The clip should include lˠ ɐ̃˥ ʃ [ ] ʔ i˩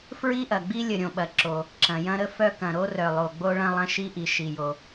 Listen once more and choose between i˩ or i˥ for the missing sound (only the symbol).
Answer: i˥